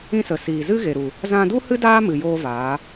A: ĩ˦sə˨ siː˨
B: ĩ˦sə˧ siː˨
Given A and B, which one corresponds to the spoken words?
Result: A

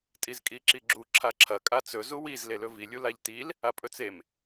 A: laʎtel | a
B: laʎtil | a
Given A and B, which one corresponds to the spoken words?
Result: B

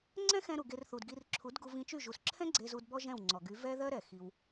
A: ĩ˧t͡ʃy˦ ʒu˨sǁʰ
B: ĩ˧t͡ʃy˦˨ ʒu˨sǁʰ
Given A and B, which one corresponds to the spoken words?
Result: B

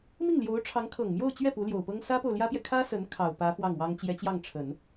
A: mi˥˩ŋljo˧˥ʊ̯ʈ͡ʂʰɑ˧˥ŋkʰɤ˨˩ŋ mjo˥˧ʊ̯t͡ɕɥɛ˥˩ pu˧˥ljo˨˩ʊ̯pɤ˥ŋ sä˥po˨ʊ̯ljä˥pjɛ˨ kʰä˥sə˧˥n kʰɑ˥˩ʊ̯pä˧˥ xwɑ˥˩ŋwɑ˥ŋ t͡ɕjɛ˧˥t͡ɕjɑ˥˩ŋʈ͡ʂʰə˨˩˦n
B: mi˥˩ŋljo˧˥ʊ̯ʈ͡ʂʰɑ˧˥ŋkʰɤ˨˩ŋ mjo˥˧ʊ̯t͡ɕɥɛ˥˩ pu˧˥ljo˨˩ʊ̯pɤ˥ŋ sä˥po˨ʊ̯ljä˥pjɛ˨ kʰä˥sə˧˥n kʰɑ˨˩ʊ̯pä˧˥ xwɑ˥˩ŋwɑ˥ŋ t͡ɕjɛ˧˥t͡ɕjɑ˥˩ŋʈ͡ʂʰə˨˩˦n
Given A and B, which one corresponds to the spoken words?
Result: B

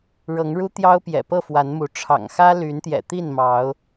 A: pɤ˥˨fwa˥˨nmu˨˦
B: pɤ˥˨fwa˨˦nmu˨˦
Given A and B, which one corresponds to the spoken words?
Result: B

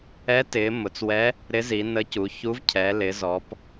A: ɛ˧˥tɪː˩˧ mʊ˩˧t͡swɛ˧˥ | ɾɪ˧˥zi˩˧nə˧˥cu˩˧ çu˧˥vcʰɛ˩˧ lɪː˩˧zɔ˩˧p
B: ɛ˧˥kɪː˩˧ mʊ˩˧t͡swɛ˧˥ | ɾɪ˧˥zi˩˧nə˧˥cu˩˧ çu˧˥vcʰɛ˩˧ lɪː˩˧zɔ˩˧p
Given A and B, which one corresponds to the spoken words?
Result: A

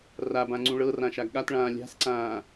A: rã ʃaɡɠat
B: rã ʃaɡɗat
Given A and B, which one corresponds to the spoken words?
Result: A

